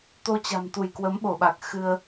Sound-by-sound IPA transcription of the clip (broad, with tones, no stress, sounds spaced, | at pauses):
t̪ o˧ t͡ɕ a̤˨˩ m t̪ u˧˩ j k w ə˨˦ m ɓ o˧˩ ɓ a˨˩ k̚ x ɨ˧ ə̯